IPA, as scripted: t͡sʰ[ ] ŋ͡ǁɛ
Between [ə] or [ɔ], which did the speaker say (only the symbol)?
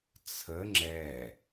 ə